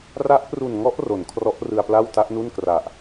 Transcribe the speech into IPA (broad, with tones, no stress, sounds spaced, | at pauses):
r a˦˥ ʔ p r u˨˩ n ŋ ɔ˦˥ ʔ r o˩˦ n kʰ r ɔ˦˥ ʔ r ɯ˧ a̯ p l a˥˩ w t a˦˥ ʔ n u˥˩ n k r a˨˩ ʔ